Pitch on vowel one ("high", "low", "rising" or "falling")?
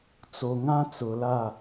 low